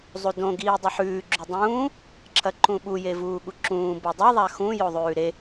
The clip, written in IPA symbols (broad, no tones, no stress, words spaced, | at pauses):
zˤudõ ɡiːdˤɨħʉː ɡ͡ǁudˤũː | ǁʰɐǃũɓu jevuːɠuǁũː bodˤe ðˤaxũ joðˤʉːɾe